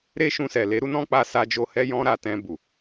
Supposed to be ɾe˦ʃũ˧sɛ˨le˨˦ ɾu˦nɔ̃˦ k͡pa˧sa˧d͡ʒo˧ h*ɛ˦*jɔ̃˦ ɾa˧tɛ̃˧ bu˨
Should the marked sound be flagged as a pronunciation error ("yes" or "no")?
no